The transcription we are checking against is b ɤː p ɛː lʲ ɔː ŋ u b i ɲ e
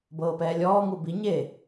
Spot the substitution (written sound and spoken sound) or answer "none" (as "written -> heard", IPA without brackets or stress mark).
none